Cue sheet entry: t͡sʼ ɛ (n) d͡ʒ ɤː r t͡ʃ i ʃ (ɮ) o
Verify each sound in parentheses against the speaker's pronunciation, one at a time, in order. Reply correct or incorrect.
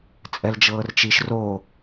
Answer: incorrect: l, incorrect: r

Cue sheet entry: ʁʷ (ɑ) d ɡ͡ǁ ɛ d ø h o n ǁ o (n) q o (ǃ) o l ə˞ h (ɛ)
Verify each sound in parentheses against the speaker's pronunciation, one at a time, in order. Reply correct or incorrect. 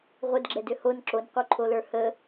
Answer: incorrect: ə, correct, incorrect: ǃʰ, incorrect: ə

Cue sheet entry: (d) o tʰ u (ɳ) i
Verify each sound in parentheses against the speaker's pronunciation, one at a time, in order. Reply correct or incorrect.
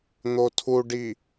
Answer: incorrect: n̪, incorrect: ɖ

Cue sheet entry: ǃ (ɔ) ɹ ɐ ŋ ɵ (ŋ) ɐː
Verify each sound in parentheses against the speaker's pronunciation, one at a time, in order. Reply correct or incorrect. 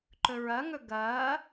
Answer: incorrect: ɵ, incorrect: ɡ

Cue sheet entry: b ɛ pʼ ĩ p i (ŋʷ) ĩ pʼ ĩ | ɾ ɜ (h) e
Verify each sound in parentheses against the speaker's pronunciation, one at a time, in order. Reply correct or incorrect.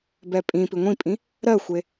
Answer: correct, incorrect: xʷ

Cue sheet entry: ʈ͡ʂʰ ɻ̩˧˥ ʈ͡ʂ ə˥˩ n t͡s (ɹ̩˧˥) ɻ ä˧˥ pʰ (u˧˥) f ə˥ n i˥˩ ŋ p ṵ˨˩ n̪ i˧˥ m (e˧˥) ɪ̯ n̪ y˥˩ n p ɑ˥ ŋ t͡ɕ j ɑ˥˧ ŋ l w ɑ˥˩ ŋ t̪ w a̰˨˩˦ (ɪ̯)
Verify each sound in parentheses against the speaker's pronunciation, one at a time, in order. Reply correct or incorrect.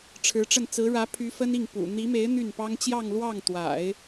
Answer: correct, incorrect: y˧˥, correct, correct

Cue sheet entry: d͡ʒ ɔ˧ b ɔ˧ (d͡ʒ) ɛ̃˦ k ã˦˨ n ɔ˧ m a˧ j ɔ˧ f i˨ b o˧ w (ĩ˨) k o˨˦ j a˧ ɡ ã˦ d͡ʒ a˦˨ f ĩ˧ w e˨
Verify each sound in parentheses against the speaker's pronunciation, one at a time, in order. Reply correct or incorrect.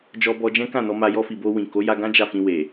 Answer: correct, correct

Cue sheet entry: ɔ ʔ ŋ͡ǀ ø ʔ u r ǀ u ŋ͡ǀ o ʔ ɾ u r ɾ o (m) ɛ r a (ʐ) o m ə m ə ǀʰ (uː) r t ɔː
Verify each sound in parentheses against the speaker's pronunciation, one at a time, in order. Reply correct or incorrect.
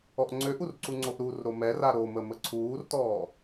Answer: correct, incorrect: ɾ, correct

